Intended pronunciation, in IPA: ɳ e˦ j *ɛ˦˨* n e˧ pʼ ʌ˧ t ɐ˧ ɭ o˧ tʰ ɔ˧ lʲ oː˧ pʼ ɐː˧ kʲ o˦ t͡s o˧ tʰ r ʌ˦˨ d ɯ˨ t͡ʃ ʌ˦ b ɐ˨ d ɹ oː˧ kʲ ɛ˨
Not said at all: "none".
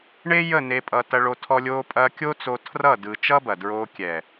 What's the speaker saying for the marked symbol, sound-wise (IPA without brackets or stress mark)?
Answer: ə˦˨